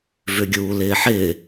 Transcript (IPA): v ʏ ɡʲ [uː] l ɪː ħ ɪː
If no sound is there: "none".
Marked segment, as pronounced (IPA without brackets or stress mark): uː